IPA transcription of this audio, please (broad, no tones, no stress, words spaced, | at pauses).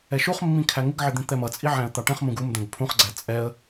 ɛʃuχmːĩ kʰæŋɪɡʕɪ d̪ĩt̪ɛmʌt͡sʼi ʕæ̃ə̯t̪ɑʈɛ̃χmũɡ um d̪ɛ̃ɡpʰũχɡ͡ǀæ t͡sʼɛə̯